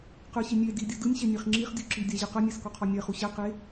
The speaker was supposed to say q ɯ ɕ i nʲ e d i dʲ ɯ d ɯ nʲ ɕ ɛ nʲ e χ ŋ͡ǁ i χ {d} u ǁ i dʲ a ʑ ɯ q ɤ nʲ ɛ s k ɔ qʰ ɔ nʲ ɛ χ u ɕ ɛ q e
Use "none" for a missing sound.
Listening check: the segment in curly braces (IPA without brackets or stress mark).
dʲ